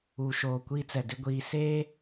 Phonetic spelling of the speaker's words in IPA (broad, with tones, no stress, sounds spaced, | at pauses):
uː˨ ʃ oː˨ kʷ iː˦ t͡s ɛ˨ d ɪ˦ ɡʷ iː˨ s eː˦